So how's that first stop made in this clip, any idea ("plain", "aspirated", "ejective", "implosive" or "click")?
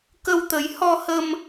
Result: plain